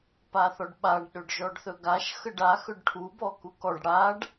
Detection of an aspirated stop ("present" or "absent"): present